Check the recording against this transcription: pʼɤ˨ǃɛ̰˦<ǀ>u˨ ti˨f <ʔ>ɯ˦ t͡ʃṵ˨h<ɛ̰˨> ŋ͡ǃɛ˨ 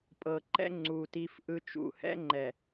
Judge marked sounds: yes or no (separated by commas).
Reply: no, yes, no